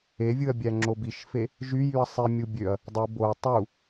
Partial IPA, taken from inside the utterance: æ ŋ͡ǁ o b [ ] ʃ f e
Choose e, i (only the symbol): i